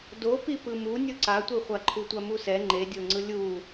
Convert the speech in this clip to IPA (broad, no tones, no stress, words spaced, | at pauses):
dopi pɯmu nʲuǀatʷiχʷa ǃʰutʷamusɛ ŋ͡ǃedʲoŋ͡ǀɯ lʲu